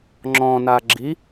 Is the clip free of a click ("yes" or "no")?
no